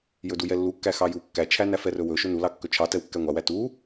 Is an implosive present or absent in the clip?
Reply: absent